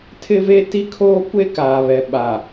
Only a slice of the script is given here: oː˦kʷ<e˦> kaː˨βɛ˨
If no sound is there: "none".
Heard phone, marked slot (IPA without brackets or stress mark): e˦